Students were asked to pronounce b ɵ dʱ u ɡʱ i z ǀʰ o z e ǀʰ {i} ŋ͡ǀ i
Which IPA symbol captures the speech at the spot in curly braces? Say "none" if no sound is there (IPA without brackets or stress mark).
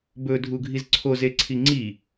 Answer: i